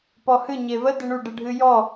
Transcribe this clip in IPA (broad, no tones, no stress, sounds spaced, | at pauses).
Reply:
p ɔ h ɨ ɲ e v ə d ɪ ɳ u ɖ ɨ ɖʱ ɨ j ɔ